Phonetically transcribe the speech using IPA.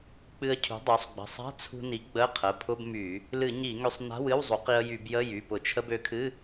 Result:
k͡pɨ˧ə̯cʰṳ˩˥dˤø˩˥sˤ ɡ͡bə̤˩˧˩sˤa̤˧˥˧t͡sʰṳ˧ni˩˥ ɡ͡bə˧˥˧qʰə˩˧˩ pʰʊ˧˥˧b my˧˩˧ | lɨ˧˩˧ ɲi˧˩˧ŋø˧sˤna̤˧˥˧w ɨ˧˥˧wzˤu˩˥qi˧ə̯ jy˧˩˧bjə˧˥˧ jy˩˧˩pʊ˧˩˧t͡ʃʰə˧˥˧bø˧ kʰɨ˧˥˧

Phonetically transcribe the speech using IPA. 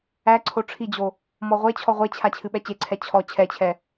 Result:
æǀʰo ʈ͡ʂʰid͡ʑo | mɔʁʷet͡ɕʰɔ ʁʷet͡ɕʰa t͡ɕʰɨɓɛt͡ɕeǀʰɛ t͡ɕʰɔ t͡ɕʰɛt͡ɕʰɛ

